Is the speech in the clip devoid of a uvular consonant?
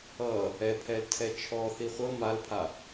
no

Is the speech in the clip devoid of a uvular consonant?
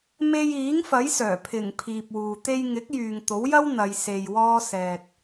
yes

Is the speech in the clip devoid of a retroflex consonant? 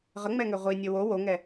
yes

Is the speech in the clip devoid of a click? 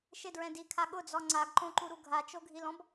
no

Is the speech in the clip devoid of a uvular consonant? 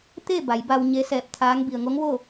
yes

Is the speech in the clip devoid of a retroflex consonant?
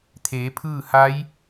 yes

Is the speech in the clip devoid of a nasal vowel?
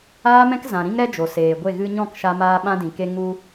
no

